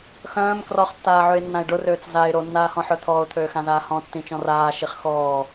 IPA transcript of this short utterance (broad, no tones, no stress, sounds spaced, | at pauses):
x œ̃ː m k r ɔ χ tː aː ʕ ø ɪ̯ nː ã ɪ̯ ɖ ʊ r øː t͡s z a ɪ̯ ɾ o nː aː h ɔ̃ ħ œ t̪ʰ ɔː ʊ̯ t̪ʰ øː x ã z aː h ɔ̃ tː ĩ t͡ʃ ɔ̃ r aː ʃ i χ x ɔː